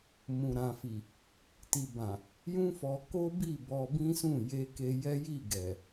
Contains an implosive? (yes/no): no